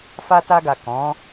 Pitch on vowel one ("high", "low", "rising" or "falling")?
high